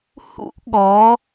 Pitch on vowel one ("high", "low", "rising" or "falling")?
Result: high